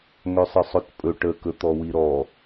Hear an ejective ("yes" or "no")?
yes